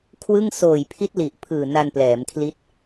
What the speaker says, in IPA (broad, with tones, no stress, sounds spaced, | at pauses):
kʰ w ɯ˥˩ ŋ s oː˨˩ j pʰ i˦˥ t̚ l i˨˩ ʔ pʰ ɯː˨˩ n a˧ n p l ɛː˩˦ m kʰ l i˦˥ t̚